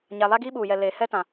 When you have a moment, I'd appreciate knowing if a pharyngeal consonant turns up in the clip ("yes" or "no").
no